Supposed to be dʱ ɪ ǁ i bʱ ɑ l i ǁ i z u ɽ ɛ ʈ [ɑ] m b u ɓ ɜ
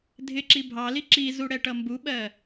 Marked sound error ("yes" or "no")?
yes